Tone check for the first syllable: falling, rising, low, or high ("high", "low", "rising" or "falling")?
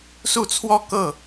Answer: falling